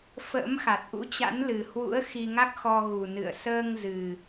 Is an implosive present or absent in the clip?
absent